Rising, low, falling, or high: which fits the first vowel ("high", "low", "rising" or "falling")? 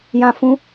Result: high